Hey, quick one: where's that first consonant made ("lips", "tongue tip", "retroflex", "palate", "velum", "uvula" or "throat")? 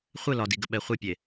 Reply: uvula